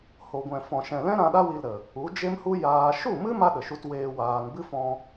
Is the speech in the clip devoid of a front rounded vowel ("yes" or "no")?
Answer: yes